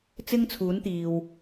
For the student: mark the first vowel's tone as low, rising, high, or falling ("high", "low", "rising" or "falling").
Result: high